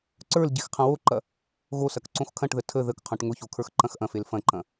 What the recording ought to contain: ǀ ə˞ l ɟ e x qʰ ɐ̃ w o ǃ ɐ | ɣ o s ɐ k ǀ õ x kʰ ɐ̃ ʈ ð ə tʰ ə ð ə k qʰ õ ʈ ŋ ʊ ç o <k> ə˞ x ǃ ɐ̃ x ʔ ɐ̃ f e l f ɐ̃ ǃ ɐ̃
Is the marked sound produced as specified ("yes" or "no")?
no